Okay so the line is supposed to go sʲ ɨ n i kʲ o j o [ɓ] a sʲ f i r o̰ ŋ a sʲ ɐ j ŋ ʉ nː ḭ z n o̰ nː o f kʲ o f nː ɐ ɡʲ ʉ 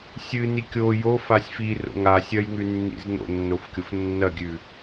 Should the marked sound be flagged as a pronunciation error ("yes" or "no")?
yes